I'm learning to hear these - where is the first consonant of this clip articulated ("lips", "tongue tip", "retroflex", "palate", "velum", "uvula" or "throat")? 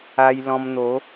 palate